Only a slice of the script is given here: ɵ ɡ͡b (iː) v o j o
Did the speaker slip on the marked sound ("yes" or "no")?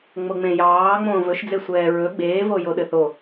yes